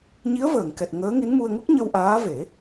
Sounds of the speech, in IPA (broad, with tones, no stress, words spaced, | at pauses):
ɲi˧˥ə̯vəː˨˩˨ŋkɛ˨˩t̚ ŋəː˧˥ŋi˧˥nmu˧ə̯ ŋu˦˥k̚ ɲə˧wʔaː˧˥ve˨˩˦